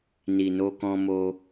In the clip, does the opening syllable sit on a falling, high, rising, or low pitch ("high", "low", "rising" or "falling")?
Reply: low